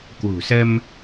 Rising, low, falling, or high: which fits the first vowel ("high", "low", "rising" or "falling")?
low